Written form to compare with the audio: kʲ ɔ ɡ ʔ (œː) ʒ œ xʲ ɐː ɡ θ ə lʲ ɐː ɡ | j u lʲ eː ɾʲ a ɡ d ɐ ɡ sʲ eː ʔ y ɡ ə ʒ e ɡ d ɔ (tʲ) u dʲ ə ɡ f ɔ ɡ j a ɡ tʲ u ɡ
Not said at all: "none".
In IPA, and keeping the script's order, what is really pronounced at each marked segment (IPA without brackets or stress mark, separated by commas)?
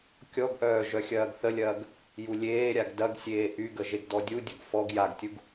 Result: œː, dʲ